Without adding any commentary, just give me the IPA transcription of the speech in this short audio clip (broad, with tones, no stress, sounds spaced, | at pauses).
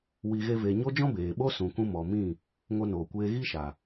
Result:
w i˧ ɣ e˦ v e˧ ɲ o˦ d͡ʒ ɔ̃˦ b eː˨ ɓ o˦ s ũ˨ k ũ˧ m ɔ˨ m ĩ˦˨ | ŋ o˧ n oː˨ kʷ eː˧ ɣ i˦ ʃ a˨